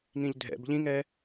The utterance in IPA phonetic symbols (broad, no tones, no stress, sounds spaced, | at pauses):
ŋ ĩ ʎ dʱ ɛ̰ b ʎ ĩ ŋ ɛ